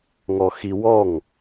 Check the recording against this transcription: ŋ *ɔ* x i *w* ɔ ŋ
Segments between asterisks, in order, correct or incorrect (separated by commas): correct, correct